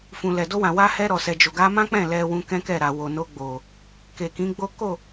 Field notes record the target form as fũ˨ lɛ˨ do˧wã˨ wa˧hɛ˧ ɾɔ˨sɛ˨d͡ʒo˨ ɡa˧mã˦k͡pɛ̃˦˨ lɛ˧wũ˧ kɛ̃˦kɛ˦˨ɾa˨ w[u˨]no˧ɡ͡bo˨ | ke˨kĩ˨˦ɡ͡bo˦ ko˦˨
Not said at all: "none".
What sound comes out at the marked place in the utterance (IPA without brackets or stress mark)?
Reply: o˨